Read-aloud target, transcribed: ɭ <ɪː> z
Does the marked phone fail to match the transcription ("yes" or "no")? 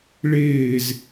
no